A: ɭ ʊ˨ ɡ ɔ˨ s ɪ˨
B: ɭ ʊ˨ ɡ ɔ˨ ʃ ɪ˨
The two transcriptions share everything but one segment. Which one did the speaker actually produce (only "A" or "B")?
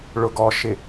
B